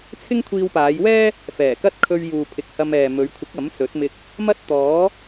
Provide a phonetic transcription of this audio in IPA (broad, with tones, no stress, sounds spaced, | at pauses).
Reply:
t͡sʰ ɪ˥ ŋ kʷʰ iː˧ w p aː˨˧ j w ɛː˥ | f ɛː˨˩ k ɐ˥ t̚ kʰ ɵ˧ ɥ j uː˨ pʰ ɪ˨ k̚ h ɐ˧ m ɛː˨ m ɵ˨˧ ɥ kʷʰ ɪ˨˥ k̚ ɐ˨˥ m s ɵ˨˥ t̚ m ɪ˧ k̚ | m ɐ˥ t̚ t̪ ɔː˨˥